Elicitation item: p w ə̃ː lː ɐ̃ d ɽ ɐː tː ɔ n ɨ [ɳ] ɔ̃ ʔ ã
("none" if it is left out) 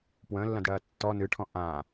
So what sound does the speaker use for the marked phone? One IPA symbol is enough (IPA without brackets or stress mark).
ʈʰ